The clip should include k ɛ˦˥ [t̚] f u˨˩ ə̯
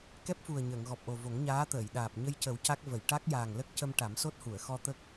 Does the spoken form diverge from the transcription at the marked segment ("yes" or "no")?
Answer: yes